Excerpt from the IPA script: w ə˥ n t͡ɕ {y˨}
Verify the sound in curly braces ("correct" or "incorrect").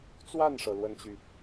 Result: correct